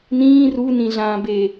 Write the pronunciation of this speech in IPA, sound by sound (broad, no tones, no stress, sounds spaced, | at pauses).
n ĩː r u n ĩ ɮ ãː b e